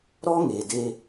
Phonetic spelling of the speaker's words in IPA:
ɾ ɔ˦ ŋ e˨ d e˦

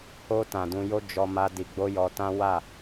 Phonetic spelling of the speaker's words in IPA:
h o˧ t ã˨ d ũ˧ j o˦ d͡ʒ ɔ˧ m a˧ d i˧ ɡ͡b o˦ j ɔ˧ t ã˦ w a˦˨

